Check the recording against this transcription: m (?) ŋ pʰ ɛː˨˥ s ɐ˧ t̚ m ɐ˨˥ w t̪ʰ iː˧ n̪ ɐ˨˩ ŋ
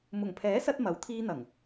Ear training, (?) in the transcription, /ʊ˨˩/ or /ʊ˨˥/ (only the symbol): ʊ˨˩